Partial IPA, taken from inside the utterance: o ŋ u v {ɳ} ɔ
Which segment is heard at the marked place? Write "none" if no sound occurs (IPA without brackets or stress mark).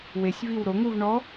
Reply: ɳ